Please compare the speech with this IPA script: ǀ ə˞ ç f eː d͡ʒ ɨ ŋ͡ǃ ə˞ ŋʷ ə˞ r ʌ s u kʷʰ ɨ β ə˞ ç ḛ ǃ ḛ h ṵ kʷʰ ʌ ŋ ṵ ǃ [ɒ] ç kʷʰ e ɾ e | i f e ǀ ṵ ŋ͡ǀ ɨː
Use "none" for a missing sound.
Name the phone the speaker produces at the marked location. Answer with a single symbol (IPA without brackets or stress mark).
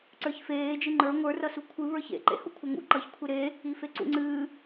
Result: ʌ